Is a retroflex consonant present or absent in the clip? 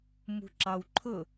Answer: absent